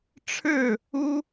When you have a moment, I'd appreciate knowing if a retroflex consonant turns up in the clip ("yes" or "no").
yes